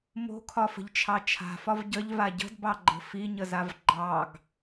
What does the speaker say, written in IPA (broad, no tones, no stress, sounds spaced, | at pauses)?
m o̤ kʰ ɒ f ə̤ ʎ t͡ʃʰ ɑ t͡ʃʰ a̤ f ɒ v ɟ ə ʎ v a ɟ ə̤ d b ɑ ɡ͡ǃ ə̤ f i ɲ ə z a v ɡ͡ǃ ɑ ɡ